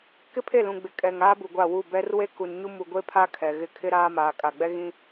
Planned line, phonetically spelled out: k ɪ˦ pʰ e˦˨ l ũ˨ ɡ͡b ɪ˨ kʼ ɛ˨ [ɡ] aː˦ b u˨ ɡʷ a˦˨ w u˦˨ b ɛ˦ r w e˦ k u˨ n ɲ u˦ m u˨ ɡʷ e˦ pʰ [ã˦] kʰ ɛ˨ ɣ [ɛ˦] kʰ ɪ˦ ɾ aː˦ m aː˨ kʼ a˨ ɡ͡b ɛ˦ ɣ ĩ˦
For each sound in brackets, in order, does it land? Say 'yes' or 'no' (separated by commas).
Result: no, no, no